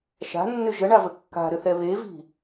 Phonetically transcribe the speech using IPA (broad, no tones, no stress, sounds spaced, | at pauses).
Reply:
ʃ a̤ nː ʏ ʒ ə ɳ a v ə kː a̤ ɾ ʏ θ ɛ β e v i̤